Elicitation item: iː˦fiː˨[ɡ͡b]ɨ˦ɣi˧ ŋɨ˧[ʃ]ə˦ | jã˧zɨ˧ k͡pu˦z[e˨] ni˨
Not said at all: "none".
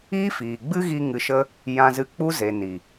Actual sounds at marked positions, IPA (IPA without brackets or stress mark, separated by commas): ɡ͡b, ʃ, e˨